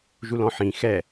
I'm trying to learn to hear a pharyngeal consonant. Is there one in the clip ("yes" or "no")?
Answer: yes